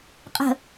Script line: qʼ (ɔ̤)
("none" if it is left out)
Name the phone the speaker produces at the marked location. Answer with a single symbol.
ə̤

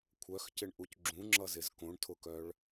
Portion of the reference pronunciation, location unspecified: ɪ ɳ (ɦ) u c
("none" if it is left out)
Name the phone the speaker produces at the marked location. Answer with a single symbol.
ʔ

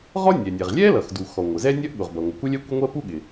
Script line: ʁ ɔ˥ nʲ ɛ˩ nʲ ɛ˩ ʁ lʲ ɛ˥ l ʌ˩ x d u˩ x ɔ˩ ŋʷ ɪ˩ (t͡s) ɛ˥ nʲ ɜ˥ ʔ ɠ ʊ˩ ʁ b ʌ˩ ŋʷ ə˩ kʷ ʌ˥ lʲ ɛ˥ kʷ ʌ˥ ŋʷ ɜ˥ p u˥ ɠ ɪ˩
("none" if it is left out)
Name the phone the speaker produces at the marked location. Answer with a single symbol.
z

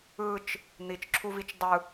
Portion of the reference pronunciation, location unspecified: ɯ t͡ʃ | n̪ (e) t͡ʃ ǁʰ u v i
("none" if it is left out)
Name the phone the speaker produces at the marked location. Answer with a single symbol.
i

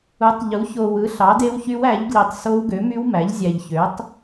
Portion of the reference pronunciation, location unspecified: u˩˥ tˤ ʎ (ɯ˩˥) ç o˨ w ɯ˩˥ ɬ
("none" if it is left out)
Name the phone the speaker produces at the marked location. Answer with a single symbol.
u˩˥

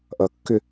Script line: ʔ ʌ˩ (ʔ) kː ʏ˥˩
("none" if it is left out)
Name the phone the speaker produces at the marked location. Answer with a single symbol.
none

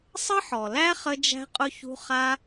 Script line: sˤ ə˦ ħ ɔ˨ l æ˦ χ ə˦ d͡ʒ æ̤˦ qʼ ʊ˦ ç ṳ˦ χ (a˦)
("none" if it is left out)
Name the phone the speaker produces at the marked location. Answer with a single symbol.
a˦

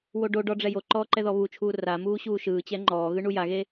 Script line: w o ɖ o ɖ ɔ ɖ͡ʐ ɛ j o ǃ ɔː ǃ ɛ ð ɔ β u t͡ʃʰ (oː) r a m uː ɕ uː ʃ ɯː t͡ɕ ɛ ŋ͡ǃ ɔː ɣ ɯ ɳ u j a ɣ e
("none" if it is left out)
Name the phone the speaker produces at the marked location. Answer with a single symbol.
uː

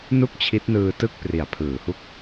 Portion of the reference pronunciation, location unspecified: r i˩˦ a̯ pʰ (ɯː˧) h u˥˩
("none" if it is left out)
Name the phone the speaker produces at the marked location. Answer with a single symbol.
ɯː˩˦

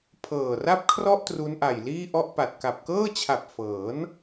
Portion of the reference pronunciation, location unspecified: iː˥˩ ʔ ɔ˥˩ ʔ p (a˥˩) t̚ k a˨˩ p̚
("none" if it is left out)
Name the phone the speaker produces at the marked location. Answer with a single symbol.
a˨˩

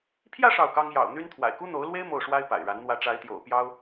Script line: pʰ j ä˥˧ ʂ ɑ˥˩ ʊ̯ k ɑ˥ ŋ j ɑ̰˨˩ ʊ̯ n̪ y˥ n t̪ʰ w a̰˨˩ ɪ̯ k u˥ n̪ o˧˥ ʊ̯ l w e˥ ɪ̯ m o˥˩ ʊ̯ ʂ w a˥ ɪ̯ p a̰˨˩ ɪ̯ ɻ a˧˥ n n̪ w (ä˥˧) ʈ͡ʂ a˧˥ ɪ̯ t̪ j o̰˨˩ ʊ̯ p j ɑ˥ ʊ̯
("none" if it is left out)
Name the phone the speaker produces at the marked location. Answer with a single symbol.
ä˧˥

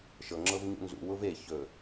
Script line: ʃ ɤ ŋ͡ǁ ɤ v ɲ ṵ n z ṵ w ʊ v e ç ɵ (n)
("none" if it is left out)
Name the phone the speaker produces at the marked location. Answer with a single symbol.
none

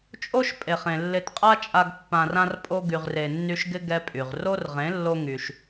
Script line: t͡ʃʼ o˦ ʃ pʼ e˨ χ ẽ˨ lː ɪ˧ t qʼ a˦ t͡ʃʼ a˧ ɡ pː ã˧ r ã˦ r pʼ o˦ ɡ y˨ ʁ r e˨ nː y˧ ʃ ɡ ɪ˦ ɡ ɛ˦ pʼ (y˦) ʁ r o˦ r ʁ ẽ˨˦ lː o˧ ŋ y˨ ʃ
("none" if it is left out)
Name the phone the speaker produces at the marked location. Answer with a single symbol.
y˨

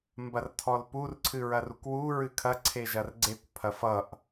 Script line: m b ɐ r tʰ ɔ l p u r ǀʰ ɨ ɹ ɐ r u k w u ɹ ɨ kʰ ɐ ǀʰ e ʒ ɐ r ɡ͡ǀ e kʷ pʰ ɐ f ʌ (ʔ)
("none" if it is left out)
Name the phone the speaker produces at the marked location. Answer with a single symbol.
ʔ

